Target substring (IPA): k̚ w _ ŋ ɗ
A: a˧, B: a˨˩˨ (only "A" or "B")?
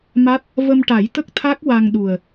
A